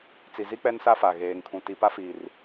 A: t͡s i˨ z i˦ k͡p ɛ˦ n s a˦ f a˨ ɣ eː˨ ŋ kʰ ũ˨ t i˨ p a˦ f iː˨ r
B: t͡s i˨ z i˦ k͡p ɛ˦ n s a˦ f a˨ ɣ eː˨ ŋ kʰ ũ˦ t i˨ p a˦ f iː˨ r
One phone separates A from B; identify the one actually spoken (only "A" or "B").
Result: A